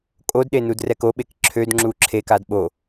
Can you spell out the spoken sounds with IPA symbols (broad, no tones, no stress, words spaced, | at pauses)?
kʼodɗenudrɛk oɓek ǁʰødŋ͡ǁu ǁʰekad ɓo